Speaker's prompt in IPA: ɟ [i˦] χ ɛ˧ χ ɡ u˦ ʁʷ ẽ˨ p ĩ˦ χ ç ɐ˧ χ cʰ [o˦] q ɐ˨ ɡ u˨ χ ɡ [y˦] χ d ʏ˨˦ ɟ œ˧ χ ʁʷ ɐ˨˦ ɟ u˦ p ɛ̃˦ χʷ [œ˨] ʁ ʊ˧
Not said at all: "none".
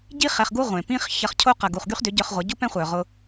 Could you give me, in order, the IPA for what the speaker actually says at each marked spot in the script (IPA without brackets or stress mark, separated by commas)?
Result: i˦, o˦, y˦, œ˨